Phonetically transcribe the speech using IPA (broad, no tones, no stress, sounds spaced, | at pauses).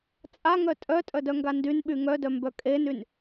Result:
t͡sʼ a ŋ œ tʼ œ tʼ œ d œ ŋ ɡ a n d y n ɓ y ŋ œ d œ m b œ kʼ e n y n